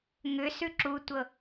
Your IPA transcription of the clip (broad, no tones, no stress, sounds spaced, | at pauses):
ŋ ʏ s ʉ ǁ u tʷ ɤ